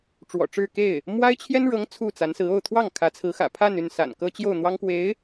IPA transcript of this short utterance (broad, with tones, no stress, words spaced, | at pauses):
ʈ͡ʂwɔ̰˨˩ʈ͡ʂɻ̩˥˧ ke˥˩ɪ̯ | mwa˥ɪ̯ t͡ɕʰjɛ˥nɻɤ˧˥ŋ t͡sʰu˥˩t͡sa˧˥nsɹ̩˧˥ o˥˧ʊ̯t̪ʰwɑ˥˩ŋ kʰä˧˥t͡sʰɹ̩˧˥xä̰˨˩ pʰa˥˧ny˥˩n sa̰˨˩n kɤ˥t͡ɕjo˥˩ʊ̯ n̪wɑ˥ŋkwe˧˥ɪ̯